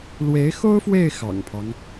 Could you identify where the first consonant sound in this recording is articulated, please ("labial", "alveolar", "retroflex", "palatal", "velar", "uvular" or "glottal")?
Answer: alveolar